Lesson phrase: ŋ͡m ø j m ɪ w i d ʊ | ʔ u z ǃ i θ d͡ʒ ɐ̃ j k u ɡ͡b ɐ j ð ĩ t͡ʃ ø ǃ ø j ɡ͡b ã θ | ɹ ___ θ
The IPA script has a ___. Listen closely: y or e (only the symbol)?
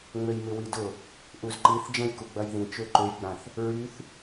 y